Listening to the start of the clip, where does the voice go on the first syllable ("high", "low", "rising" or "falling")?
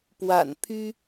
low